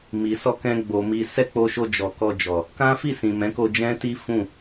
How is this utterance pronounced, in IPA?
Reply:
m i˨ s ɔ˧ k ɛ̃˧ ɡ͡b o˨ m i˧ s ɛ˦ k͡p o˧ ʃ o˧ d͡ʒ ɔ˨ k ɔ˧ d͡ʒ ɔ˨ | k ã˦ f i˦˨ s ĩ˨ m ɛ̃˨˦ k o˧ d͡ʒ ɛ̃˦ t i˦ f ũ˦˨

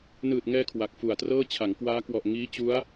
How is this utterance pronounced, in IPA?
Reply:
n ɯː˨˩ t̚ ŋ ɛː˧ kʰ w a˨˩ k̚ f u˨˩ a̯ t r ɤː˥˩ t͡ɕʰ a˩˦ ŋ k w aː˦˥ k w ɔ˨˩ ʔ ŋ iː˦˥ t͡ɕ u˦˥ a̯

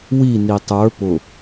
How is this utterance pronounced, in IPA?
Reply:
w i n i tˤ ə˞ p ʊ

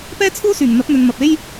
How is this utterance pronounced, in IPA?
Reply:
p ɛː˥ t͡sʰ uː˥ s yː˨˩ ŋ n̪ ɐ˨˥ p̚ n̪ ɵ˨ n m ɐ˨ p̚ e˥ j

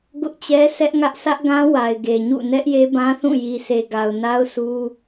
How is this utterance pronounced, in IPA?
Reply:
ɡ ʊ˦ ʔ t͡ɕ ɛ˦ s ɛ˦ ʔ ŋ ä˦ ʔ sʰ ä˦ ʔ ɡ ã˦ w a˨ ɪ̯ ɡ e˨ ɲ ṵ˦˨ n ɛ˦ ʔ j e˦ b ã˦ θ ũ˦˨ j i˨ s e˨ ɡ a˨ ʊ̯ n a˦ ʊ̯ s u˦

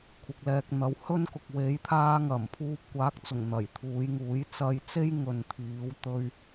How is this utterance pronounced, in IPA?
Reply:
kʷʰ ɪ˨ k̚ l ɛː˧ k̚ n̪ ɐ˨˥ w h ɵ˥ n k ʊ˨ k̚ w e˨˧ j t̪ʰ aː˧ ŋ ɐ˨˩ m pʰ uː˧ p̚ kʷ aː˨˥ k̚ t͡s ʊ˨˩ ŋ n̪ ɐ˨˩ j t̪ʰ uː˨˧ j ŋ uː˨˥ j t͡s ɐ˧ j t͡s e˥ j ŋ ɵ˨ n t̪ʰ iː˨˧ w t̪ ɵ˧ ɥ

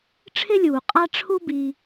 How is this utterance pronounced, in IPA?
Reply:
ʈ͡ʂʰ ɪ˥ lʲ uː˩ qʼ a˥ ʈ͡ʂʰ u˥ b i˨

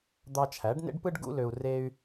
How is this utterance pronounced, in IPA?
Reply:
d̪ ɑ˧ t͡ʃʰ æ˩˥ ɖ n ḛ˥ ɖ p ɯ˥ ɖ ɡ ṵ˥ l ø˧ u̯ r e˧ y̯

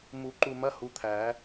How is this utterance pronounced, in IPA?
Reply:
m u˨˩˦ ǃ u˧˩ m ɐ˧˥˧ h u˨˦ t̪ʰ æː˨˩˦

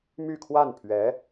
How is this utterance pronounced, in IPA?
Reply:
m y˥˧ kʰ w a˥˩ n pʰ ɥ ɛ˧˥

